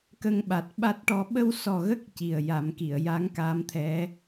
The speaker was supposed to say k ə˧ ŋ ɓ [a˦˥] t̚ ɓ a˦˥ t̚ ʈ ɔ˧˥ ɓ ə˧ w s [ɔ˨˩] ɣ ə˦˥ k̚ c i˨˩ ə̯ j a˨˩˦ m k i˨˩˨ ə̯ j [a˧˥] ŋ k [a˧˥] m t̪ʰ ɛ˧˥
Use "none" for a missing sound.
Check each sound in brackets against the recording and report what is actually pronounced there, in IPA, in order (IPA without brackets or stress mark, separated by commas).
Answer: a˨˩, ɔ˨˩, a˧˥, a˧˥